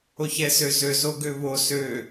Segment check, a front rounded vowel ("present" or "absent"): present